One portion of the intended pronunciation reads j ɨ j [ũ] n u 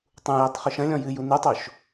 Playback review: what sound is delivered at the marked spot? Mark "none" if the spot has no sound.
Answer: u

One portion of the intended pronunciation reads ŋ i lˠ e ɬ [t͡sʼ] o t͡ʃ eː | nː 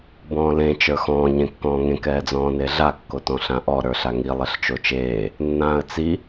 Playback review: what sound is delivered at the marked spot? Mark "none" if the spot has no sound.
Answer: t͡ʃ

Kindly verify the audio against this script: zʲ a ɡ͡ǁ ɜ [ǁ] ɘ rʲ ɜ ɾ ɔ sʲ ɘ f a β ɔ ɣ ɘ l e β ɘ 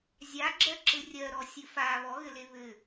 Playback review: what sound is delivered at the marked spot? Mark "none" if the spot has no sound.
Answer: ǁ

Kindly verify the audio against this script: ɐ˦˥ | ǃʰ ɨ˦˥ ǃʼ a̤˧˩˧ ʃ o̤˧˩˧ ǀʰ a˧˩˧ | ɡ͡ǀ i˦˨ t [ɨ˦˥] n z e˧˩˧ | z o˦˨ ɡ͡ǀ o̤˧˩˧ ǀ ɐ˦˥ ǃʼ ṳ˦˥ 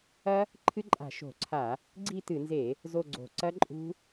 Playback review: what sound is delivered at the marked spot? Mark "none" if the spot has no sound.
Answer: ɨ˧˩˧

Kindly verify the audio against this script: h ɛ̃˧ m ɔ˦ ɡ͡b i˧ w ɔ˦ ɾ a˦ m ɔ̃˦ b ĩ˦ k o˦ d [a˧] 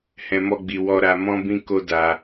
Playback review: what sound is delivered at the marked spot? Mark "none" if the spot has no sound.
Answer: a˧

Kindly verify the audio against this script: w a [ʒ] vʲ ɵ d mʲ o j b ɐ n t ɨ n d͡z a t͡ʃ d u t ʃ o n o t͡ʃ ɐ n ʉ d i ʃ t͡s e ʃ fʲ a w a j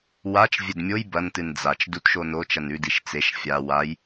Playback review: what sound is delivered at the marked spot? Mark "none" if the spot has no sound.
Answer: t͡ʃ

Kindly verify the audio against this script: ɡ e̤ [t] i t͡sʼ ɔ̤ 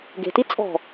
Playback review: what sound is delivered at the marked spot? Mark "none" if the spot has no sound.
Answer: t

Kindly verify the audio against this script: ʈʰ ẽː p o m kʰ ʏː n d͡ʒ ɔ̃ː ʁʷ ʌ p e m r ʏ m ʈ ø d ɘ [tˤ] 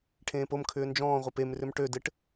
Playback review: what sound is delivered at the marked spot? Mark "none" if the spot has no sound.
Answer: ʈ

